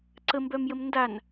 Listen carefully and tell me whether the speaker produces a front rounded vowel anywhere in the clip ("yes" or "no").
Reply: yes